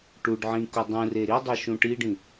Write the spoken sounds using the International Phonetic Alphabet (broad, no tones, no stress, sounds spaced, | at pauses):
ʈ u ɖ ʕ ĩ k u dˤ ũ r e ɾ i dˤ ɛ ʃ ũ ʈ i ɖ ĩ